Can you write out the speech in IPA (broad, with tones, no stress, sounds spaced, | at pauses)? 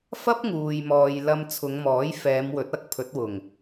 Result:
f ɐ˥ p̚ ŋ uː˨ j m ɔː˨ j l ɐ˧ m t͡sʰ ʊ˨˧ ŋ m ɔː˨˥ j f ɛː˨˧ m w ɵ˨˥ t̚ ɐ˧ k̚ pʰ ɵ˨˥ t̚ w ʊ˨˩ ŋ